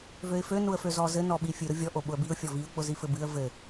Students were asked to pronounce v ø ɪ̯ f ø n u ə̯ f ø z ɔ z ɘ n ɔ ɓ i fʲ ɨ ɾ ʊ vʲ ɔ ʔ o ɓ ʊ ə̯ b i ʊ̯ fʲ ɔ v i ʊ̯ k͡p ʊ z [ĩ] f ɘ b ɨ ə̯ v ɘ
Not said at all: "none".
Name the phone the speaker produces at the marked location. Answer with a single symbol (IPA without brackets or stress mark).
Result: i